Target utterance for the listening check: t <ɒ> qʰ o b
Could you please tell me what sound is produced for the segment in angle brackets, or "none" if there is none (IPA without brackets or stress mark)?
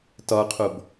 ɒ